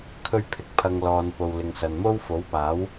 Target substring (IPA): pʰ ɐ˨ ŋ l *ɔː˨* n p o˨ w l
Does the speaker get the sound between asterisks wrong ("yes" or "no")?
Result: no